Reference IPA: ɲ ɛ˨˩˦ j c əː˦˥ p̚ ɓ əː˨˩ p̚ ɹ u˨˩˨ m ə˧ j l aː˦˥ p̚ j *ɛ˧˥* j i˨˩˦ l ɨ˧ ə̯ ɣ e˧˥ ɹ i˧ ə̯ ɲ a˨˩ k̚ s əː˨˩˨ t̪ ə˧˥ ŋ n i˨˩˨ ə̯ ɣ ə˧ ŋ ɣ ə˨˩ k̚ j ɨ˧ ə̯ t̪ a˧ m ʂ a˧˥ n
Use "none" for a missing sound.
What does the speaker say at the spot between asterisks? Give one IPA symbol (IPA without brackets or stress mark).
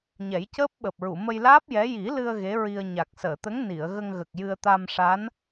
ɛ˧˥